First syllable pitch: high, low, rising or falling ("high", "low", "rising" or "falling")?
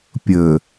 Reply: low